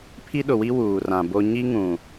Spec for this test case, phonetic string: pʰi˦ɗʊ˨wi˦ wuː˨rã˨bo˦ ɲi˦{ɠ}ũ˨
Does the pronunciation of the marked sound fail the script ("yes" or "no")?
yes